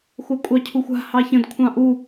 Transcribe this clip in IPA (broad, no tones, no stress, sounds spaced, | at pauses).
xʷ a kʷʼ ɑ cʰ u xʷ a̤ h ɑ ç ə̃ d kʷʰ ɑ̃ ʔ u